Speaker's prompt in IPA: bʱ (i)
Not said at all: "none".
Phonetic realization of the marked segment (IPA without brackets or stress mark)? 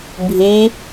i